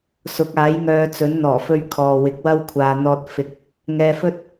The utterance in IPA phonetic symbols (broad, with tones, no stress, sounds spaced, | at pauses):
s ʊ˨˥ k̚ aː˨˥ j ŋ œː˨˧ t͡s ɵ˨˥ n n̪ ɔː˨˩ f ɵ˧ ɥ kʰ ɔː˨ w ɪ˨˥ k̚ w ɐ˥ w kʷʰ aː˨ n̪ ɔː˨ t̚ f ɪ˨ k̚ | ŋ ɛː˧ f ɵ˥ t̚